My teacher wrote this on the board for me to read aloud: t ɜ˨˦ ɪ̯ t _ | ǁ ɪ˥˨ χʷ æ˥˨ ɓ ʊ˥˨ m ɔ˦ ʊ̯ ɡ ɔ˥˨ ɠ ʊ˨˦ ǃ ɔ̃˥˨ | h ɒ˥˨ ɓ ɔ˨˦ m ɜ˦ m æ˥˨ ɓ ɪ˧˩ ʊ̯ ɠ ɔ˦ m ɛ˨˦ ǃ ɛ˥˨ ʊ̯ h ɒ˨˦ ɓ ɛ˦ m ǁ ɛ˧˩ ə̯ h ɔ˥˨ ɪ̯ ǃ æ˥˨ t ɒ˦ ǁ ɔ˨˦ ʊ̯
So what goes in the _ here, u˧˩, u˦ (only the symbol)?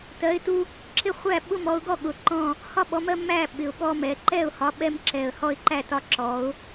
u˦